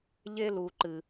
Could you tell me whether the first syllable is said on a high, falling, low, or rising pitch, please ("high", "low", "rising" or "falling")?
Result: high